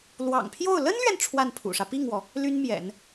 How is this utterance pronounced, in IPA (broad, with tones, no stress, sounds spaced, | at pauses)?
l w ɑ̰˨˩ ŋ pʰ j o˥˩ ʊ̯ l ə˥ n l ɥ ɛ˨ n ʈ͡ʂʰ w a˥˩ n pʰ ṵ˨˩ ʂ ä˦ p i˥˩ ŋ w ɔ˩ | l y˥ n m j ɛ̰˨˩˦ n